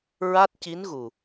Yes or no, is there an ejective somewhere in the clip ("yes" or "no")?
no